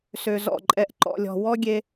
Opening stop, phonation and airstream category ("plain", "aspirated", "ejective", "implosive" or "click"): click